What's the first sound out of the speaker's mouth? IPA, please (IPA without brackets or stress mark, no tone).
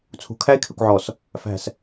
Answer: t͡sʰ